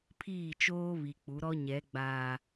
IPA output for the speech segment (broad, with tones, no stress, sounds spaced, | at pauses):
pʰ iː˦˨ t͡ʃ oː˦ β i˨ k͡p u˨˦ ɾ ɔ˦ ɲ ɛ˨˦ ɡ͡b aː˨